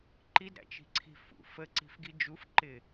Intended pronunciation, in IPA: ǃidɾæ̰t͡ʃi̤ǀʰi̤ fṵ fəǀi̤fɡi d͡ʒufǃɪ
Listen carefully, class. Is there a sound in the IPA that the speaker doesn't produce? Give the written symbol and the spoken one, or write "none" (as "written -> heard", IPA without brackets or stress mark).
none